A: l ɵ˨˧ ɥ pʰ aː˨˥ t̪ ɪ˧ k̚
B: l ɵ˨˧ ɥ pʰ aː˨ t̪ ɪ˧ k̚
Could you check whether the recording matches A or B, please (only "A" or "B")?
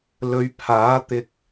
A